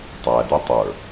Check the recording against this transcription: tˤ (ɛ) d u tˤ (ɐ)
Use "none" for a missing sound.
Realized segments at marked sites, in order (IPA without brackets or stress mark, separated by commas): æ, ə˞